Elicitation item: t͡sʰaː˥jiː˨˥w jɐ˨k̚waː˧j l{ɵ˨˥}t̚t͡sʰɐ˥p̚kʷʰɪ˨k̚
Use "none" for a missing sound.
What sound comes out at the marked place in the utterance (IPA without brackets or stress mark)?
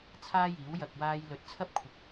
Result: ɵ˨˥